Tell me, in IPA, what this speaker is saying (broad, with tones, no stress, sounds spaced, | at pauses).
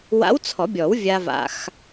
w a̰˧˥ w t͡sʰ ɔ˨˩˦ bʲ ɔ˨˩˦ w vʲ a˧ v a̰˧ x